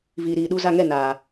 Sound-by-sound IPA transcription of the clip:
viː˨ɾiː˨ɗu˧za˦˨ ŋɛ˦˨ naː˨

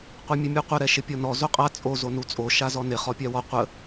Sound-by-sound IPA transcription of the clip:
qʷɛmʲəmʲuqʷə ɾɛʃɪpʲɔnɔ zoqʼa t͡sʼo zonut͡sʼo ʃazɔnɪ χɔpʲawɔ qʷə

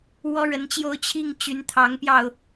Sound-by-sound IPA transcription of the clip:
wɔ˥ɻə˧˥nt͡ɕjo˥˧ʊ̯ t͡ɕʰi˥˩ŋt͡ɕy˧˥n t̪ʰɑ˧˥ŋpjɑ˧ʊ̯

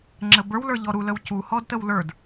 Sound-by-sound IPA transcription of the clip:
ŋ͡ǁəbə˞w lə˞ʎɔɾu ləwcu hɔdtəwlə˞d

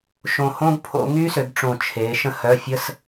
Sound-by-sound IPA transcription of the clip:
ʃõ˧˩hõ˥ɡpʰo̰˨˦ ŋy˥sø˨˦ɡʈ͡ʂõ˧˩ t͡ʃʰe˨˦ ʃə̃˥hœ˧˥˧fʲə˥s

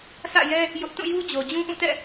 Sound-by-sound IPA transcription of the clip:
sʰä̰˦˨jɛ˦ | jʊ˦ʔ tũ˦˨ju˦d͡ʑo˨ d͡ʑũ˦ʔũ˦˨tɛ̰˦˨

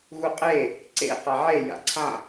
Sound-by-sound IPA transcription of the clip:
ɣuqʼe | ǀḛ qaʕe ja̰ǀʰã

